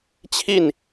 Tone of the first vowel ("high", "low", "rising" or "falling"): falling